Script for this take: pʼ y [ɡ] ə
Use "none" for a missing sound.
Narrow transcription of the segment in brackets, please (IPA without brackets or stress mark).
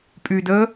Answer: d